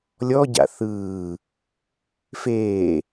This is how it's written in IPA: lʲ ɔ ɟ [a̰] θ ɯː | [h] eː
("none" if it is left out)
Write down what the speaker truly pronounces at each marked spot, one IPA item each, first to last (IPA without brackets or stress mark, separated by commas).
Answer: a̰, f